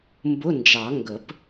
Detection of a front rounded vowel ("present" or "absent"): absent